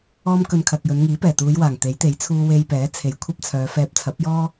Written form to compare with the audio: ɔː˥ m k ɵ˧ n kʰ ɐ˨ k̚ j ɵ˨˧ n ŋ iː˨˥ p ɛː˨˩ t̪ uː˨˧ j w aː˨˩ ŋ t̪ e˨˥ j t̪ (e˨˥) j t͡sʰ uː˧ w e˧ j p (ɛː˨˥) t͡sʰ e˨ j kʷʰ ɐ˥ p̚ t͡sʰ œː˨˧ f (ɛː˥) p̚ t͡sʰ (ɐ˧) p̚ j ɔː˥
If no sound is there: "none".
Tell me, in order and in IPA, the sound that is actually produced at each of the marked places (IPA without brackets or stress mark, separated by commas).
e˨˥, ɛː˨˥, ɛː˧, ɐ˨˥